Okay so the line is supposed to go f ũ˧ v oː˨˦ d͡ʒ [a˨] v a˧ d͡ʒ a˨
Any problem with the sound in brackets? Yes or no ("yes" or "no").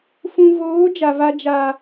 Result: no